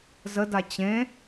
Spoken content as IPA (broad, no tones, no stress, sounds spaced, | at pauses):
z ə d a t͡ɕ ẽ